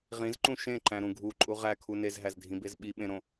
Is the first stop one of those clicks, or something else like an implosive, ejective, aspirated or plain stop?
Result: click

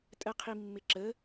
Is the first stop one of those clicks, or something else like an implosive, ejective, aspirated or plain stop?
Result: ejective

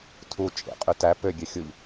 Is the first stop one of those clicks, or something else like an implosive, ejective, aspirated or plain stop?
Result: aspirated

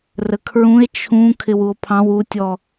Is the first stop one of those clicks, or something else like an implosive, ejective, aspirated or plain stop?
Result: aspirated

